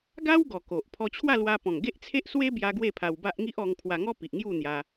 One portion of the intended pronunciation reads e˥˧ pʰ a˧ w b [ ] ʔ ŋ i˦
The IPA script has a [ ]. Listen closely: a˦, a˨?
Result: a˦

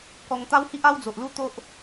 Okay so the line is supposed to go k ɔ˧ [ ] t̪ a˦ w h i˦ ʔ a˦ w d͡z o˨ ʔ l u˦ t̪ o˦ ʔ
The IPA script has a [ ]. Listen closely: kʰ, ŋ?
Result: ŋ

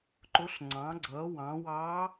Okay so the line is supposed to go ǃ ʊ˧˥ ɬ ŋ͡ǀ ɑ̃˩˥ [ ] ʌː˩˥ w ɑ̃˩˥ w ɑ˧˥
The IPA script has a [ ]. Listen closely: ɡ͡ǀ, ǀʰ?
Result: ɡ͡ǀ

